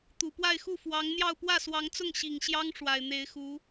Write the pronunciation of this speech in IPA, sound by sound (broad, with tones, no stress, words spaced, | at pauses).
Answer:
t̪u˨˩pwa˥˧ɪ̯xu˥˩ fwɑ˧˥ŋn̪jɑ˥˧ʊ̯ pwä˥˩swɑ˧˥ŋt͡sʊ˥˩ŋ ɕi˨˩ŋɕjɑ˥ŋ ʂwa˨˩ɪ̯n̪e˧˥ɪ̯xu˧˥